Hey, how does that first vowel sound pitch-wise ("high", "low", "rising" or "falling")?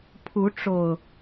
rising